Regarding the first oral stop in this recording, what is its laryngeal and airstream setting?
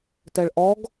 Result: plain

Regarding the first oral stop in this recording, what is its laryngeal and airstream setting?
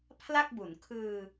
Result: aspirated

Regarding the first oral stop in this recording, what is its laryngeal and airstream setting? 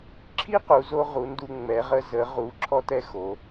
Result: click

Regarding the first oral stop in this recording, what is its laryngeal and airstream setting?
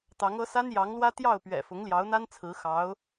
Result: plain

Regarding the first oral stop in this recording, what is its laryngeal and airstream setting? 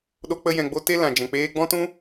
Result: implosive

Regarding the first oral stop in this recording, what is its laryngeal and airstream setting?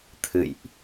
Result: aspirated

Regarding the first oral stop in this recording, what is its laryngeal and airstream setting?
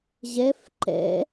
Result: click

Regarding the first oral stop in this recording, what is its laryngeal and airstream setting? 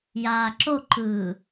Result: click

